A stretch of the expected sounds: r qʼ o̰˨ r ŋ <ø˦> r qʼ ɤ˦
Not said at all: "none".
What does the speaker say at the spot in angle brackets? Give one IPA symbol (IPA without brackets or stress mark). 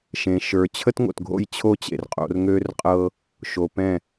ø˦